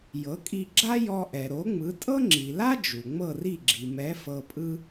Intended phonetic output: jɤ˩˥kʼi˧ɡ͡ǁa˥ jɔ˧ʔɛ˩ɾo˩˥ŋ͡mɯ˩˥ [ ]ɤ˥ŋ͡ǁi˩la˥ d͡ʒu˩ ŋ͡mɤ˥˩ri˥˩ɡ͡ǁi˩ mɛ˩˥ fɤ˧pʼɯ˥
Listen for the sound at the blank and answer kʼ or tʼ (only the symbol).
tʼ